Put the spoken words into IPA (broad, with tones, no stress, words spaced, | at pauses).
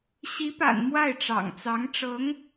ɕi˧˥pa̰˨˩n mwa˥˩ɪ̯ʈ͡ʂɑ̰˨˩ŋt͡sɑ˧˥ŋʈ͡ʂɤ˧˥ŋ